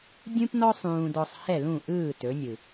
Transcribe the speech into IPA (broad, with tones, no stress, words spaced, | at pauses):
dʲũ˥pnɔ˥ sˤũː˧dɔ˧sˤ hɛ˥˩lũ˥˩ʔɯː˥˩ tɵ˩˥nʲɯ˩